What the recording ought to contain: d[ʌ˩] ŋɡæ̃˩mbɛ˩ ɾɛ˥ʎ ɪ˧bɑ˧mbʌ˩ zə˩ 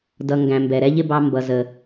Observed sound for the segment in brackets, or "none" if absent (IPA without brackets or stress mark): ʌ˩